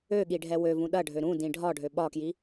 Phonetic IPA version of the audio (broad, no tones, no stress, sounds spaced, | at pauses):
ø ɠ i ɖʱ ɛ w ø v ũ ɗ ɐ ɖʱ ø ɾ ũ d ĩ ɖʱ ɒ ɖʱ ø ɓ ɒ k j i